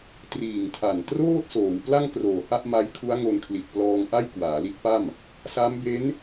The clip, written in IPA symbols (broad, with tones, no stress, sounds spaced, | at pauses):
t r iː˨˩ ŋ tʰ a˨˩ n t r oː˥˩ t̚ s oː˩˦ w p l a˥˩ ŋ k r oː˨˩ h a˥˩ ʔ m a˦˥ j kʰ u˦˥ a̯ ŋ o˧ n kʰ l i˨˩ t̚ p l ɔː˧ ŋ ʔ a˥˩ j k w aː˩˦ l i˦˥ t̚ p a˥˩ m | s a˦˥ m b e˦˥ n